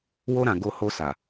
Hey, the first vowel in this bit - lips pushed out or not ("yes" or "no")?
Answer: yes